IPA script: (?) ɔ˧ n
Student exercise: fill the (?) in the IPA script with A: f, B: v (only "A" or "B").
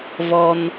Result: B